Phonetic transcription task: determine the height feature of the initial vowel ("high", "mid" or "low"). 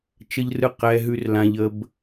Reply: mid